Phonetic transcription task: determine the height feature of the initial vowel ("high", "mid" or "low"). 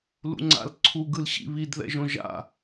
high